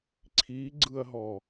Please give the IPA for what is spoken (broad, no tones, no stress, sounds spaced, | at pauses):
ǀʰ i ɡ͡ǀ ɯ ɐ̯ ɦ ɔ